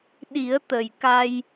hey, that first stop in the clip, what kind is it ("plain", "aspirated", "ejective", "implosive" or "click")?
implosive